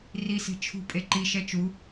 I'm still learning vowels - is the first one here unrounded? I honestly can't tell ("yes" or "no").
yes